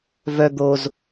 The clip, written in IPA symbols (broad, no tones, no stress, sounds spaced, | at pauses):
v œ d̪ o z